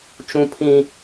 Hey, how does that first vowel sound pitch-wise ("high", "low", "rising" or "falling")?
high